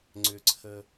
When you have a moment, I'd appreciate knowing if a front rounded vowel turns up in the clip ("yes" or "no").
yes